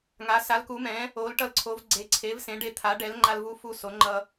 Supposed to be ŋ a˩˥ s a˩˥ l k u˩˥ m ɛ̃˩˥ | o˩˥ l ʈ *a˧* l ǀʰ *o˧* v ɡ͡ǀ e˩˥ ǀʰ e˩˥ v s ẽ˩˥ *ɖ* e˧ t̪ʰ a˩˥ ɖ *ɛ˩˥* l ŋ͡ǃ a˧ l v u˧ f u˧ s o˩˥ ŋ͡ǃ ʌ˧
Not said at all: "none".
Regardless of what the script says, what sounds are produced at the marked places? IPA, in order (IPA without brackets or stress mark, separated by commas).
ʌ˧, o˩˥, ɖ, ɛ˩˥